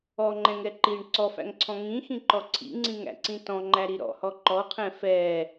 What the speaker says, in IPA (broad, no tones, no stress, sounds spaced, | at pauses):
ɔ ŋ͡ǃ ɛ̃ ŋ ɛ ǃ i ɳ ǀ ɔ f æ̰ ŋ ǀʰ ɔ̃ ŋ ĩ x ĩ ǃ ɔ ǀʰ ḭ ŋ͡ǀ ĩ ŋ æ̰ ǀ ĩ t ɔ̃ ŋ͡ǃ æ ɾ i ɾ ɔ̰ h ɔ ǃ ɔ qʰ ɛ̃ f ɛ